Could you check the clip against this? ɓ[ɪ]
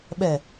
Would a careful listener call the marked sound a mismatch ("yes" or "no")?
yes